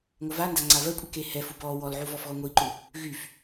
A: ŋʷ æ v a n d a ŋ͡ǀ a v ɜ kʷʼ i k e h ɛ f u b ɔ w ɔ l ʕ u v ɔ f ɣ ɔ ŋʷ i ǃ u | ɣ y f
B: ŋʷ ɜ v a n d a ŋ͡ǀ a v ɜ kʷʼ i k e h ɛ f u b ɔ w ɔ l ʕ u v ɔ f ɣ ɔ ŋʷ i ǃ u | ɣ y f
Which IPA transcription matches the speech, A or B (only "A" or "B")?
B